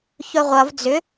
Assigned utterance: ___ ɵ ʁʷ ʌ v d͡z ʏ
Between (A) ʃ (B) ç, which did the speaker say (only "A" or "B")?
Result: B